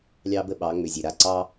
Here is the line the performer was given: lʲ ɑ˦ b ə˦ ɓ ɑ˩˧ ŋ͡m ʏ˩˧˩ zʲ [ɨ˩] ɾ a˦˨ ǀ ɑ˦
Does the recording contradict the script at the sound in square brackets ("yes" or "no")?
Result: yes